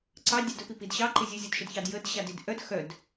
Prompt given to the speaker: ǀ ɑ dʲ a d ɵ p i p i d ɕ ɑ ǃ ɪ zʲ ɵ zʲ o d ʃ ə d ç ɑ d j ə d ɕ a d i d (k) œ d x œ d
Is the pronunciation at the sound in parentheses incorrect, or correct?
incorrect